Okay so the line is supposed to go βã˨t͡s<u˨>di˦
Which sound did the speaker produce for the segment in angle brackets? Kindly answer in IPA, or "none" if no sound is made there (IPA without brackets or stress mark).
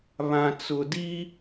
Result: ʊ˨